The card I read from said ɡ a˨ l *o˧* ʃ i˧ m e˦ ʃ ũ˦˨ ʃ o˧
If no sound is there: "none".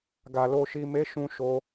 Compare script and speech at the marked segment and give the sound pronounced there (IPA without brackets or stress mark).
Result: o˧